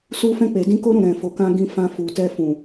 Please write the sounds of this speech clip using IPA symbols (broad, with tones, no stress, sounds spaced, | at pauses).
s u˧ f ɛ̃˧ k͡p e˨ d ĩ˧ k o˦ ɾ ũ˦˨ ɾ ɛ̃˨ f o˨ k ã˧ ɡ ĩ˧ f ã˧ f u˨ t ɛ˧ f ũ˨